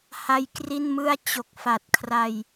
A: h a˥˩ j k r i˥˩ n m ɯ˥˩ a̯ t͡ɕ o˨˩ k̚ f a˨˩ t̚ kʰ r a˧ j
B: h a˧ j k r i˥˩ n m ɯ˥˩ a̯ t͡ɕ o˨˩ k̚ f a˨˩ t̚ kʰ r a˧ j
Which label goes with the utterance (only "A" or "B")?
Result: B